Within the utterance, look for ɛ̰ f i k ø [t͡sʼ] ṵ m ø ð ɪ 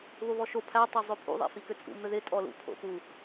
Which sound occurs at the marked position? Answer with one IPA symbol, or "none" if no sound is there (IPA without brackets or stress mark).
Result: t͡sʼ